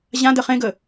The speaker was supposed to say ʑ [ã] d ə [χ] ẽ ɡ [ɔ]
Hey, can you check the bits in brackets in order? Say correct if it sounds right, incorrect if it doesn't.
correct, correct, incorrect: ə

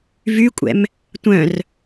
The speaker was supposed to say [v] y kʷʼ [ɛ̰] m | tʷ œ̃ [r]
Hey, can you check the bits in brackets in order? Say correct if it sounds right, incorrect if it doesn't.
correct, correct, correct

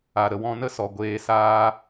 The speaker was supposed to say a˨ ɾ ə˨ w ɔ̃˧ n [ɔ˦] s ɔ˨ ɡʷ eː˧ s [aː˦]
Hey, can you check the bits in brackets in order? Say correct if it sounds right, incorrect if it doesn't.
incorrect: ə˦, correct

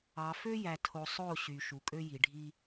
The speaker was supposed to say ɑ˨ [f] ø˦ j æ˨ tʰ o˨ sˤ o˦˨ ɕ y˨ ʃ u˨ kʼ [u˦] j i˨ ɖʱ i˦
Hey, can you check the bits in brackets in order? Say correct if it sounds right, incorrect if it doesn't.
correct, incorrect: ø˦

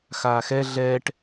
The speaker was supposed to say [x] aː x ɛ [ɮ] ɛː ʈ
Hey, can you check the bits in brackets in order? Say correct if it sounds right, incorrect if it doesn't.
correct, correct

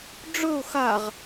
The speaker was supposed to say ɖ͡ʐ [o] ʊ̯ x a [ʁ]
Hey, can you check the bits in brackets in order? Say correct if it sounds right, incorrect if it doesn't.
incorrect: ɵ, correct

